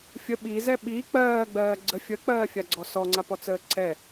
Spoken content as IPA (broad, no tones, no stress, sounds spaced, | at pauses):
fʲ ə ɓ i z ɛ ɓ i k͡p ɜː ɡ͡b ɜː ɡ͡ǀ ə fʲ ə k͡p ɜː fʲ a ɡ͡ǀ ɔ s ɔ ŋ͡ǀ a p ɔ t͡s əː ǀ ɛ